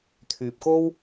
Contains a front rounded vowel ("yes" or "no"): yes